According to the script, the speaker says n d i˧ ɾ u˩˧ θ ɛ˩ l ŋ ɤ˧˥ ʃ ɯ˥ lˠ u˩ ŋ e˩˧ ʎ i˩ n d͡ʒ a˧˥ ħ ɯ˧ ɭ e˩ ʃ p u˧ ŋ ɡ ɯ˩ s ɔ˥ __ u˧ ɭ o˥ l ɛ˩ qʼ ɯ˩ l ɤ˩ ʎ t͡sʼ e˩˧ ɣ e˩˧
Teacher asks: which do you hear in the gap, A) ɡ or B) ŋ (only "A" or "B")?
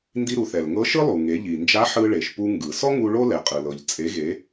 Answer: B